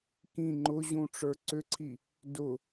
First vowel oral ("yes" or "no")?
no